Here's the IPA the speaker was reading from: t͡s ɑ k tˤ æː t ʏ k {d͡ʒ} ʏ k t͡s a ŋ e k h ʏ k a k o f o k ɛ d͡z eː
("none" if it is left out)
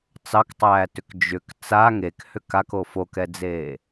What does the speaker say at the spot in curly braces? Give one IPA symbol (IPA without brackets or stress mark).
d͡ʒ